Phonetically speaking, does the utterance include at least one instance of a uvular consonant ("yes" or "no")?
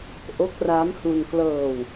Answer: no